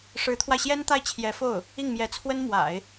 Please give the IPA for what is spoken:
ʂɻ̩˧˥t̪ʰwa˧ɪ̯ɕjɛ˥n t̪a˥˩ɪ̯t͡ɕʰjɛ˧˥fo˥˩ʊ̯ | i˥˩ŋmjɛ˧˥t͡sʰwə˥n mwa̰˨˩˦ɪ̯

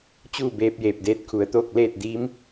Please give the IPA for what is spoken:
t͡ɕuː˥˨ beː˧p̚jeː˧˩p̚deː˧t̚ kʰu˩˧ə̯t̪oː˥˨k̚ leː˥˨t̚diː˧˥m

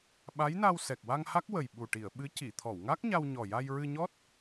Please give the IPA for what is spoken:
ɓa˧˥jna˧w sɛ˨˩k̚wa˧ŋha˦˥k̚wə˨˩j ɓu˨˩ʈi˨˩˨ə̯ ɓɨ˧˥ ci˨˩˨t̪ʰɔ˨˩˨wŋa˦˥k̚ɲa˧w ɲɔ˨˩ja˧j ɹɨ˧ɲɔ˦˥t̚

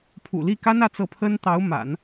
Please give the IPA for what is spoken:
pʰṵ˨˩li˥˩ka˥n ä˥˧t͡sɤ˥˩ pʰə˥n t̪ɑ˧˥ʊ̯ma̰˨˩˦n

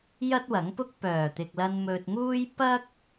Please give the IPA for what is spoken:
jɐ˥t̚wɐ˨˥ŋ pʊ˥k̚pœː˨˩t̪ɪ˨k̚lɐ˧n mɵ˨t̚ŋuː˥j pɐ˥k̚

